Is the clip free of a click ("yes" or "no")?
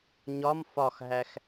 yes